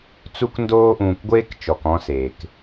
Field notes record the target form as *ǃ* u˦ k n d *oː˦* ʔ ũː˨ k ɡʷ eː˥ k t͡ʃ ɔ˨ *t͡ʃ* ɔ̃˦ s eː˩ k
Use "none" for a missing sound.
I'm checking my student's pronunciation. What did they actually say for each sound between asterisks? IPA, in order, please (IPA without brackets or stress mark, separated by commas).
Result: t͡s, oː˦, k